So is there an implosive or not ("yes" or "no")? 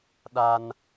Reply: yes